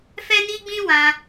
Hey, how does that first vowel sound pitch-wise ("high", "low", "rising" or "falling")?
high